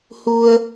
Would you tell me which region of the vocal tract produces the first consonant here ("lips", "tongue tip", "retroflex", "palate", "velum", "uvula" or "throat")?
throat